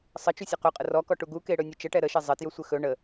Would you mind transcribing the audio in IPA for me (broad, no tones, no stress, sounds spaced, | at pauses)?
sˤ ə t͡ʃ u sʲ ɘ q ɵ qʼ ə r ɔ k ɔ ʈ u ɡ u k e ɽ ɵ nʲ ɵ t͡ʃ ə ʈ ɛ ɾ ə ʃ e zˤ ɘ t j ɵ sʷ ɘ x ɵ ɳ ə